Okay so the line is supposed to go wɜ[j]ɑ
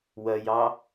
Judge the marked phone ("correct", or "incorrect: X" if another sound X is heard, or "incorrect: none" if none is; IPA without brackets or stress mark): correct